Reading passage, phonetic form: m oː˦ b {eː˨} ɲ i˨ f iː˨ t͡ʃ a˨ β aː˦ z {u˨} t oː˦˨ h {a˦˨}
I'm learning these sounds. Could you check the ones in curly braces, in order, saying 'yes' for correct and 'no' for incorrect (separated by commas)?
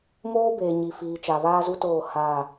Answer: yes, no, yes